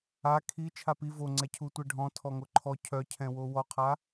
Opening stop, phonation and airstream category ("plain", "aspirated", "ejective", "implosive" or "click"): aspirated